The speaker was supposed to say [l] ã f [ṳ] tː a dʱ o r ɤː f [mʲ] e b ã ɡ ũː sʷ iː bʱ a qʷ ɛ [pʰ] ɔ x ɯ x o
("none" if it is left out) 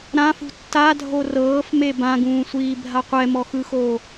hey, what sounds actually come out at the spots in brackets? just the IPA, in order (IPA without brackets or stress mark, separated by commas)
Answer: ɾ, ṳ, m, m